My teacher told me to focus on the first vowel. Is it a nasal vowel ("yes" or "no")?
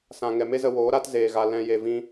yes